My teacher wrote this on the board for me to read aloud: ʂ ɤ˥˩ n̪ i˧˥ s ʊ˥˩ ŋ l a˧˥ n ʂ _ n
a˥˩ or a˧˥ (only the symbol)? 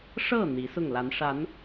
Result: a˧˥